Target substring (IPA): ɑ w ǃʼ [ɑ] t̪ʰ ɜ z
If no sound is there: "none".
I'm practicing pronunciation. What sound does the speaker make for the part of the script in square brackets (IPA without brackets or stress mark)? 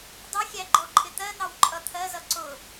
ʌ